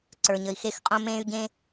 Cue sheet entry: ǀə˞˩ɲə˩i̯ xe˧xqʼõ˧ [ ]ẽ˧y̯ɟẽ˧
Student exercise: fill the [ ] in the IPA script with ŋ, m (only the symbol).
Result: m